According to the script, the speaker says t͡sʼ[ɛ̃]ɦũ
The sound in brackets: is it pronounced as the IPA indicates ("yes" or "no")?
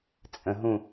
no